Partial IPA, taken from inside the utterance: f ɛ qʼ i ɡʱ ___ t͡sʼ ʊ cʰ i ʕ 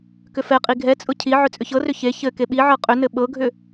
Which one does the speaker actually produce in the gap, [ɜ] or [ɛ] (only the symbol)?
ɛ